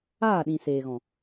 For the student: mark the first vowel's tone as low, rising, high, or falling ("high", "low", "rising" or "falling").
falling